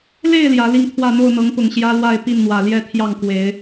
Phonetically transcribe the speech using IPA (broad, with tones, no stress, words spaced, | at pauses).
le˥˨ɪ̯ ljä˨˦li˥˨ŋt̪ʰwä˥˨ n̪o˥˨ʊ̯n̪ɤ˨˦ŋpʊ˨˩ŋ ɕjä˦lwa˥˨ɪ̯ pi˥˨nn̪wä˨˩ljɛ˥˨t̪ʰjɑ˥˨ŋ kwe˨˦ɪ̯